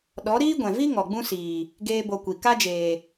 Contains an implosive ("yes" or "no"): yes